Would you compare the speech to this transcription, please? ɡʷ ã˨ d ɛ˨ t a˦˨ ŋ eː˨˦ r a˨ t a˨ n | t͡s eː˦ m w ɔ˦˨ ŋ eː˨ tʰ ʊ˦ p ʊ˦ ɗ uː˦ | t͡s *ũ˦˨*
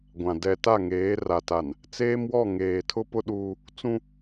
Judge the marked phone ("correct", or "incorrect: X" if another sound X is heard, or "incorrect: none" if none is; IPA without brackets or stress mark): incorrect: ũ˦